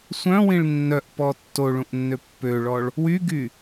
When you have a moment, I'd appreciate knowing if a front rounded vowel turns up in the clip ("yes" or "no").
yes